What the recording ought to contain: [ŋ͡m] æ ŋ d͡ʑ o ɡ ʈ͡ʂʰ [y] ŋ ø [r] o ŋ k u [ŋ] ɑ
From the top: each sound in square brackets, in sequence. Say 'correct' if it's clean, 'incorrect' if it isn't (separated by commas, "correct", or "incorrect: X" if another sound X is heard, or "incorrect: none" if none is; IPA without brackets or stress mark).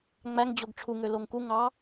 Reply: correct, incorrect: u, incorrect: l, correct